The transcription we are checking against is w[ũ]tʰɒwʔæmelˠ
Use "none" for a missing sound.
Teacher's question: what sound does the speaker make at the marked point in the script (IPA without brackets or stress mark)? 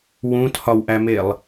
ũ